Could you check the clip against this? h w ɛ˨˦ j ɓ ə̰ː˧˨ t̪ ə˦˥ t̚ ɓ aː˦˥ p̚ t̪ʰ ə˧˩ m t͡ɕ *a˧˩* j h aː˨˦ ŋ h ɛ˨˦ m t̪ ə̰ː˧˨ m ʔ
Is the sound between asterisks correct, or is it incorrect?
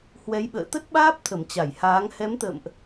correct